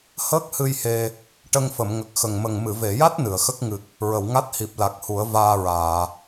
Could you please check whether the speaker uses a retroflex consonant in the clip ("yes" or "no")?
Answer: yes